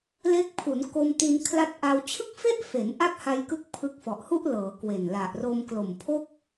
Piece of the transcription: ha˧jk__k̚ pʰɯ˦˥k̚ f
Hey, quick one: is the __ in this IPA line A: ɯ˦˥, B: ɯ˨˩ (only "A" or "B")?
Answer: A